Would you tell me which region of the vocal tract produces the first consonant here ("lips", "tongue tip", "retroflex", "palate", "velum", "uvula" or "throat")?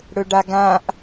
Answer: retroflex